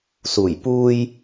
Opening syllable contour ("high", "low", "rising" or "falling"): low